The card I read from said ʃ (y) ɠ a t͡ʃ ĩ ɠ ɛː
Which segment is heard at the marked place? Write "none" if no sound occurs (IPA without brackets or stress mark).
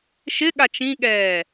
ɪ